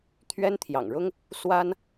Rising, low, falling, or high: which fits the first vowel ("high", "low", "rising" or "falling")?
high